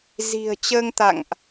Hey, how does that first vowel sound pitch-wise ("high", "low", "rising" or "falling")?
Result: low